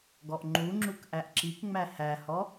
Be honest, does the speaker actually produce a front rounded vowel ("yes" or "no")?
no